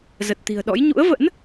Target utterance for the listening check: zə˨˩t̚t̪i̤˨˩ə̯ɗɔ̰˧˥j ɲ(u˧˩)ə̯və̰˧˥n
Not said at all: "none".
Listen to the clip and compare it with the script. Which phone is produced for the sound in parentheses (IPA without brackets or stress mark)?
ṵ˧˥